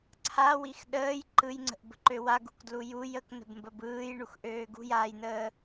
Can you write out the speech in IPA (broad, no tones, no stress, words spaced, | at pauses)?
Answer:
ǀʰawix ɗəːj ǃɯjŋ͡ǀə̤ʔbə̤ǃø waɡṳkdlu juj əknə̤bmbəb ɯːjɳuxʔøː ɡṳjaːjnəː